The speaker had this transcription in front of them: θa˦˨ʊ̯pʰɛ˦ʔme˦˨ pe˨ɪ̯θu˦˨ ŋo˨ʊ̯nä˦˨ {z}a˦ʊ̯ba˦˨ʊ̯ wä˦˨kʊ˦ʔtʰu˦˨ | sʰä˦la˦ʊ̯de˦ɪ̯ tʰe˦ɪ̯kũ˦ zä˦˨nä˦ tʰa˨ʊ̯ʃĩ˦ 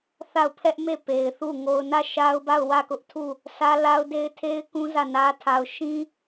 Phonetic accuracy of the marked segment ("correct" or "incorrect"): incorrect